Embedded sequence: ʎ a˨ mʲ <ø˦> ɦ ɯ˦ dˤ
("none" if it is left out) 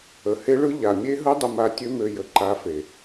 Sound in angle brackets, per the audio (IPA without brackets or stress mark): e˦